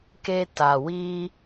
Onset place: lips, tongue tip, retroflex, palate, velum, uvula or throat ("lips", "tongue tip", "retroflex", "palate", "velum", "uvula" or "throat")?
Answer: velum